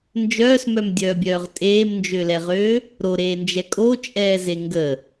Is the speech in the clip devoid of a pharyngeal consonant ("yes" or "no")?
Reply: yes